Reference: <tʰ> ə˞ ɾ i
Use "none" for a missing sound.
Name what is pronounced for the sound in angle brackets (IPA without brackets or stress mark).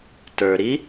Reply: t